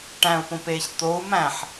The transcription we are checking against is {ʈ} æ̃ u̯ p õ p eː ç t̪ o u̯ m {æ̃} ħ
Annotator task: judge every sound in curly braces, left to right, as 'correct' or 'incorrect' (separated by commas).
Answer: correct, correct